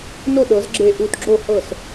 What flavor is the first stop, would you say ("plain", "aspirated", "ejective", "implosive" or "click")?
implosive